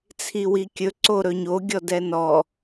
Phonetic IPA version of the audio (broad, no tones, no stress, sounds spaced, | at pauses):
t͡sʰ i w i kʲ ɵ ǀ o ɾ ɵ ɲ o ɡʲ ɔ d ɛ n ɔ